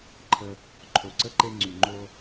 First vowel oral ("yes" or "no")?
yes